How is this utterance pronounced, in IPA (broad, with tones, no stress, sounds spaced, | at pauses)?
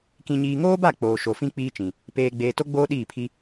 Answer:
k ĩ˨ ɲ iː˨ ŋ oː˦ b a˦˨ k͡p oː˨ ʃ o˨ f ĩ˦ k͡p iː˦ t͡ʃ ĩ˨ | p eː˨ ɡ͡b eː˨ t o˦ ɡ͡b oː˦ ɗ iː˦˨ pʰ i˦